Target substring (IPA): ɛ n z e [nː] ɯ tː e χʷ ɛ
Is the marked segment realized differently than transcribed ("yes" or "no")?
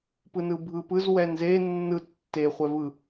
no